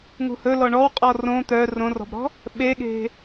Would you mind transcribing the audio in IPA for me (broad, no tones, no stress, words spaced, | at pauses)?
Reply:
ŋṳhɵ lɔɳɔwqʼɔ rõ t̪œ rõrɔ̤bɾɔ̤ | ɓeɠe̤